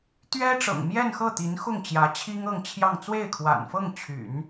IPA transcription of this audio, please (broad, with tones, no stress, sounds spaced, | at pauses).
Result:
t̪ ɥ ɛ˥ ʈ͡ʂ ɤ̰˨˩ ŋ m j ɛ˥˧ n x ɤ˥˩ t̪ i˧˥ n x ʊ˥˩ ŋ t͡ɕ j ä˧˥ t͡ɕʰ i˥ ŋ ɤ˥˧ ŋ t͡ɕʰ j ɑ˥˧ ŋ t͡s w e˥˩ ɪ̯ kʰ w a̰˨˩ n f ɤ˥˩ ŋ t͡ɕʰ y̰˨˩˦ n